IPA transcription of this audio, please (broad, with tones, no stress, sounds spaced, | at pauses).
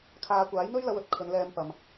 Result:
kʰ aː˨˧ kʷ aː˨˥ j n̪ ɵ˥ ɥ l ɐ˧ w ɵ˧ t̚ kʰ ɵ˨˧ n l ɛː˧ m p ɐ˨ m